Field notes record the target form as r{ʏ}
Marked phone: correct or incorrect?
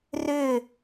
correct